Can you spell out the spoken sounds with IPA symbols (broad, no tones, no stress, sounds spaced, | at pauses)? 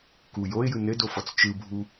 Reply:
k u j o ɪ̯ j ɯ n ɘ d o f ɔ t͡s t͡ʃ ɯ bʱ u